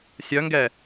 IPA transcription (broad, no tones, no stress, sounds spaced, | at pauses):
sʲ œ ŋ ɡ ɛ